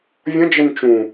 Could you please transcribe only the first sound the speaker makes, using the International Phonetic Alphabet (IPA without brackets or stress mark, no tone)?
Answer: vʲ